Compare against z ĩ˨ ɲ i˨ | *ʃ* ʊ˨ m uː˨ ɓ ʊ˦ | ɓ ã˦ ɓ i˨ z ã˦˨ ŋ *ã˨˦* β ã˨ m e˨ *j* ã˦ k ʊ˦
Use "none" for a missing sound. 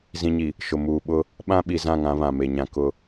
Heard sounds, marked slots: ʃ, ã˨˦, ɲ

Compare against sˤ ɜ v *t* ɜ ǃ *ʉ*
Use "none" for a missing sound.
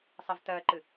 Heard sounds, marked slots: t, ɨ

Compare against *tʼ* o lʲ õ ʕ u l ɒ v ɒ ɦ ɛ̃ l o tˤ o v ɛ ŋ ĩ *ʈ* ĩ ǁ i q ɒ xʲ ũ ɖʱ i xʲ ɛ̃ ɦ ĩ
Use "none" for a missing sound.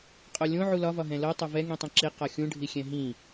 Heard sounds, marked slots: qʼ, tˤ

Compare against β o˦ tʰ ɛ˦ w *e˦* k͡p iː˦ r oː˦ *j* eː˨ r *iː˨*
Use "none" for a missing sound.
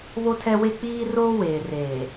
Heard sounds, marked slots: e˦, w, eː˨

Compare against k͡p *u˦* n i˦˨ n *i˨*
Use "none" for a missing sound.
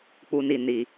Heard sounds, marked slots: u˦, i˨

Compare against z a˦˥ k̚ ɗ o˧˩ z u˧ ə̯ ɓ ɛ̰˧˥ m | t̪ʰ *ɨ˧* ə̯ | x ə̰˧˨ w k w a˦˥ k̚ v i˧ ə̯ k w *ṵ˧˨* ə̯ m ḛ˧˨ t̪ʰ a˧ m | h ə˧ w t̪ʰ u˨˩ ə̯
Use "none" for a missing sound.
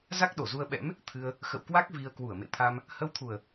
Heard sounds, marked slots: ɨ˧, u˧˩

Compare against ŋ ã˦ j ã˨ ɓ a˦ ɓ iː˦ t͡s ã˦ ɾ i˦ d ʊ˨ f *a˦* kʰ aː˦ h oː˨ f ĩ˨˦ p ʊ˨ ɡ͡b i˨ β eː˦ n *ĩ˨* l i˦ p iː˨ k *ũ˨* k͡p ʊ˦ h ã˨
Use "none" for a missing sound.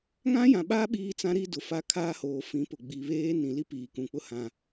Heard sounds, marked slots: a˦, ĩ˨, ũ˨

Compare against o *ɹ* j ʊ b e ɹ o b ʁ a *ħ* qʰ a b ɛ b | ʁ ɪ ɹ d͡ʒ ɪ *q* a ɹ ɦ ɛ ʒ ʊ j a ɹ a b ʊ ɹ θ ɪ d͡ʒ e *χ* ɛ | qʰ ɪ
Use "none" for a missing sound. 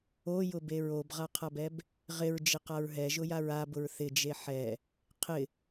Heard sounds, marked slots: none, none, q, ħ

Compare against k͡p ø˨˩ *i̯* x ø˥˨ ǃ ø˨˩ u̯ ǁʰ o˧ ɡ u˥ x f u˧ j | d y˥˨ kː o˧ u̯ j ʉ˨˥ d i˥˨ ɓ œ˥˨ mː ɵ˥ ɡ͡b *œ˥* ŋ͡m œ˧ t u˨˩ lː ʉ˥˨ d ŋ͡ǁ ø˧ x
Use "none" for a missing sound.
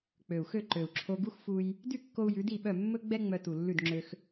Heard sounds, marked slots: u̯, ɛ˥

